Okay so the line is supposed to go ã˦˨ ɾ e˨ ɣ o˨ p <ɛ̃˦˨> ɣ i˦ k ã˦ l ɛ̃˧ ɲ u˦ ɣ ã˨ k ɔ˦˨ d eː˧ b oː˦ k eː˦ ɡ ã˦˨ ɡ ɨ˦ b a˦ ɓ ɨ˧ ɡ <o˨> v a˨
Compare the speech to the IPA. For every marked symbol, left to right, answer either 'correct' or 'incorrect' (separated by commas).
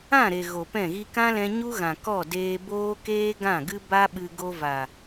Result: correct, incorrect